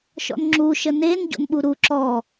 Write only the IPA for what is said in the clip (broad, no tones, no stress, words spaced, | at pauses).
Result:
ʃɔ̰nŋ͡ǁuʃə nen ɟo̰nɓuɾu ǁɔ